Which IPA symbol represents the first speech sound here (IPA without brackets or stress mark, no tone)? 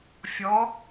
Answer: fʲ